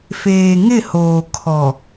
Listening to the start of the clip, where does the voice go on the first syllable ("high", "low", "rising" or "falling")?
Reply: low